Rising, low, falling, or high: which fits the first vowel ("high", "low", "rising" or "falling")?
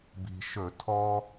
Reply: low